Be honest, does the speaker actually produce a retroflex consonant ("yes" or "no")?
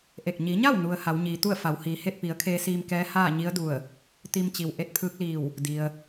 no